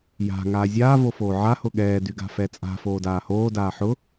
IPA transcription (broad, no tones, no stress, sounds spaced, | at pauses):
j a̤ ŋ aː zʲ aː v o f oː ʕ a h ʊ ɠ ɛː d y ɡ a̤ f ɛ t͡sʼ a̤ f oː d aː h oː d aː ħ ʊ